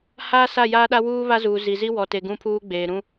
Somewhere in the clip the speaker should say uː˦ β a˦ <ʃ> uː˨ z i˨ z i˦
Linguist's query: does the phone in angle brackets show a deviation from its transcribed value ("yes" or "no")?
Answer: yes